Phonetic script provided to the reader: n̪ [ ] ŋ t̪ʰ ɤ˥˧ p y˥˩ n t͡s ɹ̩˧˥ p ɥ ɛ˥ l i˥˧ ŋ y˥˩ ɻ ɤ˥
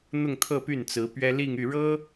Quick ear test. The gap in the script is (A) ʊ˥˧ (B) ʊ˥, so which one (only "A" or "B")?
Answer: A